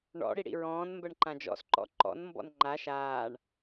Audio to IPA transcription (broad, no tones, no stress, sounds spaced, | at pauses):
ɳ ɔ̰ ɽ i ɽ ḭ ɹ ɔ̃ː n m b ɜ ɳ ǃ ã d͡ʒ ɔ̰ s ǃ ɔ̰ ǃ ɔ̰ n m b ɔ̰ n ŋ͡ǃ a ʃ aː ɳ